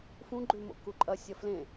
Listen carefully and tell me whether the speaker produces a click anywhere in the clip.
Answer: yes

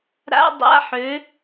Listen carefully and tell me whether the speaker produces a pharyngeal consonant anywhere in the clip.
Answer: yes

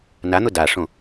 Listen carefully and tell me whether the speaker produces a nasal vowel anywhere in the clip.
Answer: yes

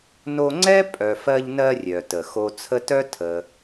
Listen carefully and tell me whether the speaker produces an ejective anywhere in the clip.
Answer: yes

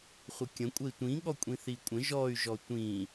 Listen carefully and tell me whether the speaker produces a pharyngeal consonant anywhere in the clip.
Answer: no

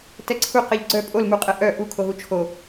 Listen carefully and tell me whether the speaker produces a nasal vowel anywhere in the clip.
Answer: no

